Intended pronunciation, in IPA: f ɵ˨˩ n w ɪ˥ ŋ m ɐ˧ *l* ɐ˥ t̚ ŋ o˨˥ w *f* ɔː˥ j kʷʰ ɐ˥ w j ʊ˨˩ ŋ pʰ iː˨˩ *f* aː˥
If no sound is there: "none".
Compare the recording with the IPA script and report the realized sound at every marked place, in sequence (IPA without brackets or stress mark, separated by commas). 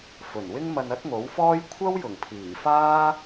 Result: n, f, f